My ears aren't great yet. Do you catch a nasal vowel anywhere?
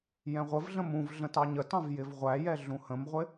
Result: yes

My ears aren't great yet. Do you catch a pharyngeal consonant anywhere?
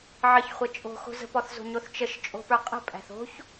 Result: yes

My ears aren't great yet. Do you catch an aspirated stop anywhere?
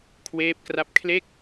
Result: yes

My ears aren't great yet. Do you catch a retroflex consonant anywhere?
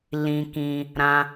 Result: no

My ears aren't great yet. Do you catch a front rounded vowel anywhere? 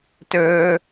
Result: yes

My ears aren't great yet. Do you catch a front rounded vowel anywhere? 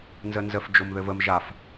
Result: no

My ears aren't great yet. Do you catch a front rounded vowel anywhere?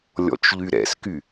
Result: yes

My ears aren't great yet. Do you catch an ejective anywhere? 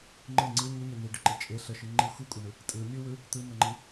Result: yes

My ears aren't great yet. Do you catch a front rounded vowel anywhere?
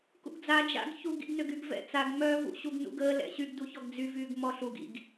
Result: yes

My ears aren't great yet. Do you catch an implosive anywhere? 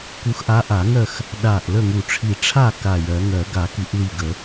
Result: yes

